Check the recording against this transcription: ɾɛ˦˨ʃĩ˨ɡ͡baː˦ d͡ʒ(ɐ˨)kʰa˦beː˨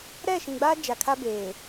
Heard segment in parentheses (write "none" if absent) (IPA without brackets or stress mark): a˨